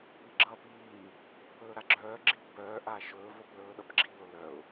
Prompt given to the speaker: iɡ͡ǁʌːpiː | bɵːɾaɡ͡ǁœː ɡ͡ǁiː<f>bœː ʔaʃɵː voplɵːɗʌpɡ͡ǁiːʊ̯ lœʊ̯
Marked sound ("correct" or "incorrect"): incorrect